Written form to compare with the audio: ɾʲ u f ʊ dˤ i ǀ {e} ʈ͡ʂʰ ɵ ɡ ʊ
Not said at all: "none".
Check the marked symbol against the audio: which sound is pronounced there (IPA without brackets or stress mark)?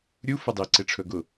e